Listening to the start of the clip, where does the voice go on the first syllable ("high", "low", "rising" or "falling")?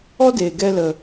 high